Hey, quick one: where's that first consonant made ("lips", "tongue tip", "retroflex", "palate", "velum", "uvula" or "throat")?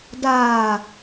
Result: tongue tip